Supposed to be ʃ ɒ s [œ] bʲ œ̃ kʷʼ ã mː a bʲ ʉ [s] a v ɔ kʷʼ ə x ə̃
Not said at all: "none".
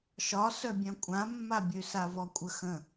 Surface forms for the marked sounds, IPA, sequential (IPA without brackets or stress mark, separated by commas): œ, s